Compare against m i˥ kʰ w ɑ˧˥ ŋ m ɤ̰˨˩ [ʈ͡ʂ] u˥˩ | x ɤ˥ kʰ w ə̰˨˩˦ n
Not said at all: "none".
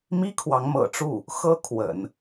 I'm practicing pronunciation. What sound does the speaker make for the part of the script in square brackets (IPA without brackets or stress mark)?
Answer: ʈ͡ʂ